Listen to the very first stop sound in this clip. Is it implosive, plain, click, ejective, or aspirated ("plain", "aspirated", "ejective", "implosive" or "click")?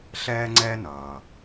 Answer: click